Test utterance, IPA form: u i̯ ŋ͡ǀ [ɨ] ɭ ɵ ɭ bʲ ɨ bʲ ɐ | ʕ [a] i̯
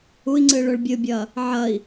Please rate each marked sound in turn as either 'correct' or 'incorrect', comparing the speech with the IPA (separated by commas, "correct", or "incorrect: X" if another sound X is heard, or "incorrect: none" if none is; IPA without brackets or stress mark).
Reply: correct, incorrect: ɐ